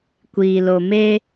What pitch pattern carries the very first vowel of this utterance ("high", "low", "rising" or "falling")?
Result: low